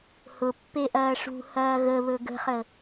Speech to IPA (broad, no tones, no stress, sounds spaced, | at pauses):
h ʊ pː e ʔ ɐː ʂ ṳ h ɐː ɣ ə β ɵ ɡ ə̤ χ ə